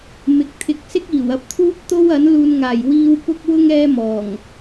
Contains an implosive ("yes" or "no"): no